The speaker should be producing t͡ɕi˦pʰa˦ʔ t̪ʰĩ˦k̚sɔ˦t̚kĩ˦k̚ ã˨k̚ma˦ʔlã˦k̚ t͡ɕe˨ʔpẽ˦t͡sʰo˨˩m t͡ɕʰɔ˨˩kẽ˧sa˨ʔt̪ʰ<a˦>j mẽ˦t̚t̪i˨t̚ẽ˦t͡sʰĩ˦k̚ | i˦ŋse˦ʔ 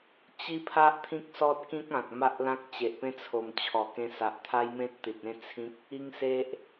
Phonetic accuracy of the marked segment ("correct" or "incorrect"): correct